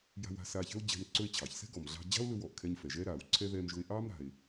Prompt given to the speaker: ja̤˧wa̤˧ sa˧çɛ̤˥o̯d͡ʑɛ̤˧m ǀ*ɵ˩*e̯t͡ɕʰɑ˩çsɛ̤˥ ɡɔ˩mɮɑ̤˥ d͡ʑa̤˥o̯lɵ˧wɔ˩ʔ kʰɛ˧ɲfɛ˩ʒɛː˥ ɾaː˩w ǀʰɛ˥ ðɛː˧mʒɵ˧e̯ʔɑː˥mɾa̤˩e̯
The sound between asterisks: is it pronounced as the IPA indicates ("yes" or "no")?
no